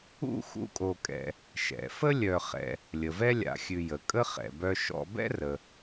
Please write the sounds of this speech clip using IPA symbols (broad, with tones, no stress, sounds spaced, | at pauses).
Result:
ṵ˥ x ṵ˦ kʼ o˨ kʼ ɛ̰˨ | ʃ ɛ̰˩ f ə˥ lʲ œ˨ χ ɛ̰˨ | lʲ ə˩ v ɛ˥ lʲ a̰˨ xʲ ʉ˨ j ə˩ kʼ ə˦ χ ɛ̰˩ b œ˦ ʃ ɔ̰˦ b ɛ̰˥ r ə˩